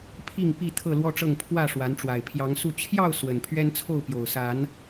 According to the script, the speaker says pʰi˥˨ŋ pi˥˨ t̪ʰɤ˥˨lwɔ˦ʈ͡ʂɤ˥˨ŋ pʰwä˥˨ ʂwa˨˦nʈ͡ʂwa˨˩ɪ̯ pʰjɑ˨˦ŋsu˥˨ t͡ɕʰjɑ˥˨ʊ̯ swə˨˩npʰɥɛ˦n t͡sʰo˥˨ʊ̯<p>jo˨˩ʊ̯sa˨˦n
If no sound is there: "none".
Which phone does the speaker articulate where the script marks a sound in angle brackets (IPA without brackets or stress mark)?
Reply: p